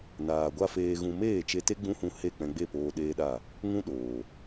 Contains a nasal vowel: yes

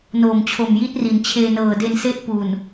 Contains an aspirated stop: yes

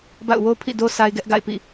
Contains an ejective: no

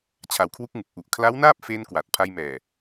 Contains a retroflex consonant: no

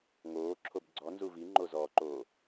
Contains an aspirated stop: yes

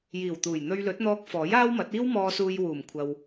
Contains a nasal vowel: no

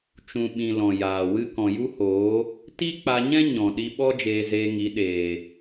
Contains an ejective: no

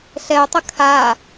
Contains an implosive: no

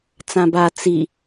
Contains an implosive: no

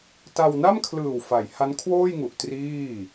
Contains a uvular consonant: no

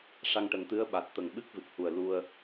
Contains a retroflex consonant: yes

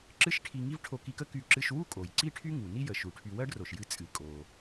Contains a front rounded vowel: yes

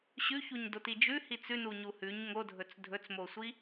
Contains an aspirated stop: no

